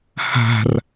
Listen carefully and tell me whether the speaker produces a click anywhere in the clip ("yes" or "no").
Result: no